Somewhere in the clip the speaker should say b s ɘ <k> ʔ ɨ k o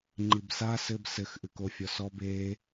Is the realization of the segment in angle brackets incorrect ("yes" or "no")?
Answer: yes